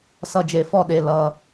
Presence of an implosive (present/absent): present